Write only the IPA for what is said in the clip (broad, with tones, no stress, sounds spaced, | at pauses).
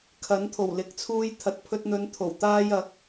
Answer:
kʰ ɐ˨˥ n t̪ʰ o˨˩ w l ɪ˨˥ k̚ t͡sʰ uː˧ j t̪ʰ ɐ˨ t̚ pʰ ɵ˧ t̚ n̪ ɵ˨˧ n t̪ʰ o˨˩ w t̪ aː˧ j ɐ˨˥ k̚